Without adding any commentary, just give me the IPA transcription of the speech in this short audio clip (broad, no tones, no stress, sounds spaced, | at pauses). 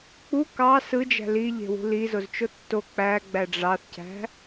k͡p u k ɑ s ɯ d͡ʒ æ̤ l i ʎ e̤ w ṳ l i z o z t͡ʃ o tː o k͡p æ ɡ͡b æ ɖ͡ʐ ɑ θ c æ̤